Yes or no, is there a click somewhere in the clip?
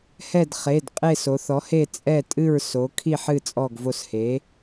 no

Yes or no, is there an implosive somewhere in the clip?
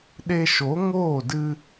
yes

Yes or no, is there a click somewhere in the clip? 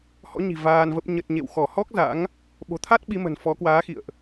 no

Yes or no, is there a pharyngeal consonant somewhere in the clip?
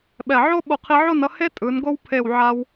yes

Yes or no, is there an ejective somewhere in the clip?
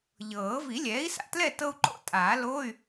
yes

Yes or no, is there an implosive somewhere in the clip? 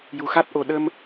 yes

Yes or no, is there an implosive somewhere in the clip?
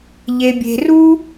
no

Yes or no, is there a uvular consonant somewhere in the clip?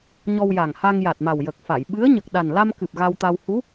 no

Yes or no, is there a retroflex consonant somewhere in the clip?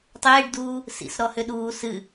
yes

